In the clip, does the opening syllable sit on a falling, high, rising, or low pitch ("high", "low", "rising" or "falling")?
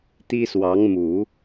high